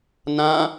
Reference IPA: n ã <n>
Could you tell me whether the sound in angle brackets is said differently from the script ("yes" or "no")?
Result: yes